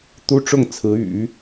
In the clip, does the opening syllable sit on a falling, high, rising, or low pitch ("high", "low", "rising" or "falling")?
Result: high